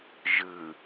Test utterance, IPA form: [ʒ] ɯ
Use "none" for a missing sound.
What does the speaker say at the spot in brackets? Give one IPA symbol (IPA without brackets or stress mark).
ʒ